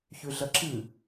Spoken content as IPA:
çʉɮɐǁɨ

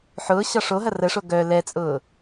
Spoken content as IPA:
ħʊː ɕɒʂoɦɐ rəʂo ɡœ lɛt͡sʼʊː

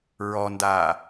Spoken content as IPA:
ɹɔndaː

